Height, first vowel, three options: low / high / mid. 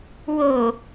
mid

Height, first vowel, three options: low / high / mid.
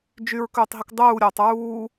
high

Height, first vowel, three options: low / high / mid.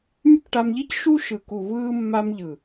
high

